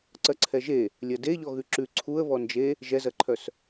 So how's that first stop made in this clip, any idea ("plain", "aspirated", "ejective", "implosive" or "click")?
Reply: click